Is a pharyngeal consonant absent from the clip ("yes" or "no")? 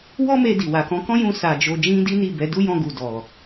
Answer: yes